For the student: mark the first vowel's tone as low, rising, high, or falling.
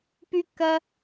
high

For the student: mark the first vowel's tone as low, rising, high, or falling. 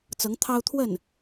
rising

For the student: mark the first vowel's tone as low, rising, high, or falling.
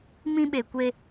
high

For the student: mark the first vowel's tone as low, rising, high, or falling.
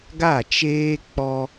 falling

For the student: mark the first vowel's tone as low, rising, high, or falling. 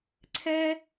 high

